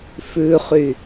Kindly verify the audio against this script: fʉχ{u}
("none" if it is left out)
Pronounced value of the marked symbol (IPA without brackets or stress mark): y